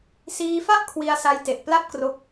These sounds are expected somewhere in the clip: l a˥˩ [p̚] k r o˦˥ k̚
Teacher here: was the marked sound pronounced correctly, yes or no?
yes